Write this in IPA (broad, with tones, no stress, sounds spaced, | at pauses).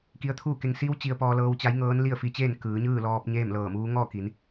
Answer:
k i˧ ə̯ t̪ʰ uː˥˨ k e˧ ŋ s i˧˥ w t͡ɕ i˧ ə̯ p ɔː˧ l ɤː˧ w t͡ɕ a˧˥ j ŋ ɤː˧˥ n l i˥˨ ə̯ f i˧ t͡ɕ eː˥˨ n k ɯː˩˧ ɲ ɯː˥˨ l ɔː˧ p̚ ɲ eː˥˨ m l ɤː˧˩ m uː˧˥ ŋ ɔː˥˨ k i˩˧ n